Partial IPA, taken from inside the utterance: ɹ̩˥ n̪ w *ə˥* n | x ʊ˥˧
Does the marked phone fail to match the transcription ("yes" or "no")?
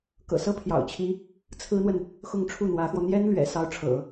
yes